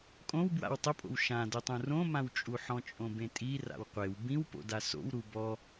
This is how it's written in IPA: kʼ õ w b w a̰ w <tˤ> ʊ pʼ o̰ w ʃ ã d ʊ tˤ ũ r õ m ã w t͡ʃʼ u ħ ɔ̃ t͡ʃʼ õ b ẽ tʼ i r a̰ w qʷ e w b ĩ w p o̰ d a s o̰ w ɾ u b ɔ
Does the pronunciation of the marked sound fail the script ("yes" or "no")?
no